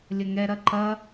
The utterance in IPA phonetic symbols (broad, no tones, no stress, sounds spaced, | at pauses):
lʲ ɐ ŋ ɛ ɾ ɐ ǃ ɐ